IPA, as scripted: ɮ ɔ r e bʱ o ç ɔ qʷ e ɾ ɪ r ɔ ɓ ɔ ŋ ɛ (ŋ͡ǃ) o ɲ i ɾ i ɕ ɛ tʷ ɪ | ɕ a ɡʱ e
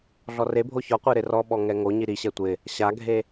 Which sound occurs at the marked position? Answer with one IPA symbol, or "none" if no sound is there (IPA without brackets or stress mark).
ŋ